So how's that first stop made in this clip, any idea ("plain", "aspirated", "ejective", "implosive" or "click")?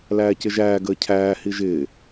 plain